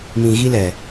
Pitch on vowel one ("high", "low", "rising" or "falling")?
low